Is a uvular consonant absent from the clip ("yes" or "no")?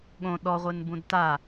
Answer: no